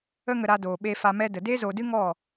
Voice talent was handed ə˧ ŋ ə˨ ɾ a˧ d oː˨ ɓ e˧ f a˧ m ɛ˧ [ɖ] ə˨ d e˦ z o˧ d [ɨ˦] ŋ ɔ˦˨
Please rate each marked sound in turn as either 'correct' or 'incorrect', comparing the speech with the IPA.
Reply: incorrect: d, correct

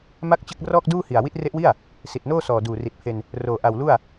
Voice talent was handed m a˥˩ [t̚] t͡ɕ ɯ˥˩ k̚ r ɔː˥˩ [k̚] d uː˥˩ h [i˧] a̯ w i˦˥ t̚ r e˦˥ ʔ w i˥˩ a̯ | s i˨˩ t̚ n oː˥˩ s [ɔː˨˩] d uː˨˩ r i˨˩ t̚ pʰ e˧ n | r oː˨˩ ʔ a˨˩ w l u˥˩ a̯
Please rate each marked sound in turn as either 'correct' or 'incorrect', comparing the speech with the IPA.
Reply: incorrect: k̚, correct, incorrect: i˨˩, correct

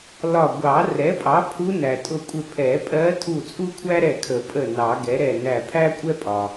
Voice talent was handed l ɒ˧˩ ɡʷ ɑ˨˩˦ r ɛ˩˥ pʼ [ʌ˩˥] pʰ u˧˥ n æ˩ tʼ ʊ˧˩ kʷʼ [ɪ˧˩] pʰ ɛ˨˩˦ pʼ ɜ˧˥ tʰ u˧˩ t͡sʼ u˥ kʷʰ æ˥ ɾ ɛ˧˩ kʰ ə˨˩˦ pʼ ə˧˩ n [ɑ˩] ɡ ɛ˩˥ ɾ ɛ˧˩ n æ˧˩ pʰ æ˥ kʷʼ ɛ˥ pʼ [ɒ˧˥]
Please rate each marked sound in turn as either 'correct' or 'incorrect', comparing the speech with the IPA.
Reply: incorrect: ɑ˩˥, correct, incorrect: ɑ˨˩˦, incorrect: ɒ˩

